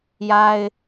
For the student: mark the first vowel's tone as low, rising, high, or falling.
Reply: high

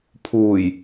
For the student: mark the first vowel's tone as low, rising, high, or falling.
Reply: low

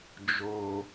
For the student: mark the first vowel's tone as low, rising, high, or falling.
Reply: high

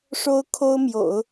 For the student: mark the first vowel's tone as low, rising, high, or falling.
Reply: high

